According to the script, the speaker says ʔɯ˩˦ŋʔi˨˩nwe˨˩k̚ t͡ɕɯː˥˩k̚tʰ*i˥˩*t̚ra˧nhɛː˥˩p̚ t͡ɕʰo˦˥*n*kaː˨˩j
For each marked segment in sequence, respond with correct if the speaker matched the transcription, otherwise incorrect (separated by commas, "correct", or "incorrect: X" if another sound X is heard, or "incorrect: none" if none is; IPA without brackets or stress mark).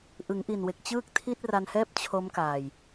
correct, incorrect: m